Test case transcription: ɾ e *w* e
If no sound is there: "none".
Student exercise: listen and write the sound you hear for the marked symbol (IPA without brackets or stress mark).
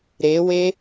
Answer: w